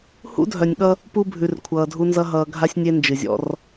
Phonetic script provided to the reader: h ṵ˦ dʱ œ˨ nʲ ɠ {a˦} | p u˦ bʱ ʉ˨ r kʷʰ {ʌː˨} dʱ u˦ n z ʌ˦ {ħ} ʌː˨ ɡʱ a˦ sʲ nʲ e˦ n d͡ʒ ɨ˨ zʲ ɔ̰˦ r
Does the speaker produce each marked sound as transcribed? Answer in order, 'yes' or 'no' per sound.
no, yes, no

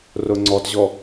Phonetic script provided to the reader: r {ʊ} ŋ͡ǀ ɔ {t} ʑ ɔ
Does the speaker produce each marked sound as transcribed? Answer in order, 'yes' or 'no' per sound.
yes, yes

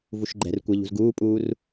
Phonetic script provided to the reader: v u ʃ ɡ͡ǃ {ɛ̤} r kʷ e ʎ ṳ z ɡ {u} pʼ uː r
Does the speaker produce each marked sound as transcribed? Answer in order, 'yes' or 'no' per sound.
yes, no

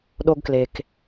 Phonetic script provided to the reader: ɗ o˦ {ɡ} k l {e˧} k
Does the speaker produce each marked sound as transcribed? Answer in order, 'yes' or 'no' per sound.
yes, yes

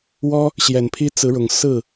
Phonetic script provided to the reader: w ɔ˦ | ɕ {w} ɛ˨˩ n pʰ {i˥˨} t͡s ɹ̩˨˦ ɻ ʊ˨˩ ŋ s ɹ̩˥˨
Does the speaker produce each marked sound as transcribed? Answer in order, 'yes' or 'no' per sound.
no, no

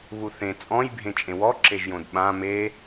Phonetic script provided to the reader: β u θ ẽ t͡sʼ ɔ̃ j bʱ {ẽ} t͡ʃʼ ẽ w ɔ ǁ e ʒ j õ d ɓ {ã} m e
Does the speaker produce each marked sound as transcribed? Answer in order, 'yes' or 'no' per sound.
yes, yes

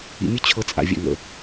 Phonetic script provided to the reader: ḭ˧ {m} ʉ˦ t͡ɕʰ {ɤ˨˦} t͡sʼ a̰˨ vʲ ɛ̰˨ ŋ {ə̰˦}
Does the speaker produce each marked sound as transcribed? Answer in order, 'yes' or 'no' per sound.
no, yes, no

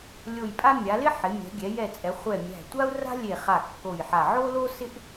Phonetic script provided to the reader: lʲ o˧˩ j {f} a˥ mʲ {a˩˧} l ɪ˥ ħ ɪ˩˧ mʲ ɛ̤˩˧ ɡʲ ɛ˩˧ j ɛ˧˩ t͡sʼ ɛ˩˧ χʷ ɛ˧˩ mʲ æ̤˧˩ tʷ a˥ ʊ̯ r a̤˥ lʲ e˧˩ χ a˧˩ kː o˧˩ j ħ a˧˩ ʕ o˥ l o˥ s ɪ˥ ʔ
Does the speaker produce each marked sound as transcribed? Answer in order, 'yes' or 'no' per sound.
no, yes

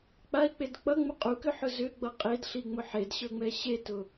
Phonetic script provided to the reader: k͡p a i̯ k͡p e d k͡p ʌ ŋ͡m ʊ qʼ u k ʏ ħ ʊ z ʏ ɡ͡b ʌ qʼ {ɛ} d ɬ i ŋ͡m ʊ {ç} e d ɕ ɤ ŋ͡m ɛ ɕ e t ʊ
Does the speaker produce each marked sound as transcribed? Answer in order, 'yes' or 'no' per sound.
no, no

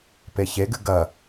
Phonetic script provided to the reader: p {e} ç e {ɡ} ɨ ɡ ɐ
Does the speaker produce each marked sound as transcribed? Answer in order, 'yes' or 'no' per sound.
yes, yes

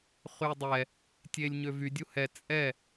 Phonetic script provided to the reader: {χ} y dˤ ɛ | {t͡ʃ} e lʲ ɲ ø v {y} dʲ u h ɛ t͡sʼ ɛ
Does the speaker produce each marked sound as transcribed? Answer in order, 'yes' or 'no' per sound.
yes, no, yes

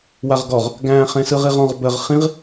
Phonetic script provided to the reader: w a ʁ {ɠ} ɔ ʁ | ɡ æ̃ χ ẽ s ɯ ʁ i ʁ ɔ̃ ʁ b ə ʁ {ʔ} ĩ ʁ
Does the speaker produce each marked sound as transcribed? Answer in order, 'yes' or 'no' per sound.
no, no

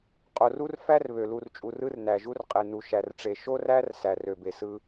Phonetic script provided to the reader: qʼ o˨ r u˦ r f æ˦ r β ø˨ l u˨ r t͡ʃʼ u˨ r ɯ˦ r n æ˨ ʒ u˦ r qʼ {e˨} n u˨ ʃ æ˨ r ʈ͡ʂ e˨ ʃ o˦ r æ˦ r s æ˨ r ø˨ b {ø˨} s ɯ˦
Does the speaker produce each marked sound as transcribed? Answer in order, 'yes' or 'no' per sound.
yes, no

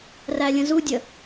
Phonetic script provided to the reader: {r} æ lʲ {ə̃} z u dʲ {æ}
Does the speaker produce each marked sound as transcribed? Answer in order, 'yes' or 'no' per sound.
yes, yes, no

